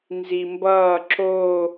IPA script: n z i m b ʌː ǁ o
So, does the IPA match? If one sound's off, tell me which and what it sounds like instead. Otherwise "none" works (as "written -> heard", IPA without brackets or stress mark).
none